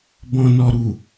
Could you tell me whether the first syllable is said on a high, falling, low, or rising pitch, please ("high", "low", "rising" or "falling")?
low